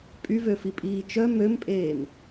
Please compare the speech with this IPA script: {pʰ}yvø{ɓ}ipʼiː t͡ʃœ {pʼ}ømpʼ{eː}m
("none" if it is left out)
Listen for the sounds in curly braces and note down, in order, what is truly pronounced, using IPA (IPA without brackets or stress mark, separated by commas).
pʼ, f, m, eː